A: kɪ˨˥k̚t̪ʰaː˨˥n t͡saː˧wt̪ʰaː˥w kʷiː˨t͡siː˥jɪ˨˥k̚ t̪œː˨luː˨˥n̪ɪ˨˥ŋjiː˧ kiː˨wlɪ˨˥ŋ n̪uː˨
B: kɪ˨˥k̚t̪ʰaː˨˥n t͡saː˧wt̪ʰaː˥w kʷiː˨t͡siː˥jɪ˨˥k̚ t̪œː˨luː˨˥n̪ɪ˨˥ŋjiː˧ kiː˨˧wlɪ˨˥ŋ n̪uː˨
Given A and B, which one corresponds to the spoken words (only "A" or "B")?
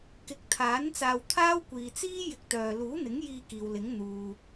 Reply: A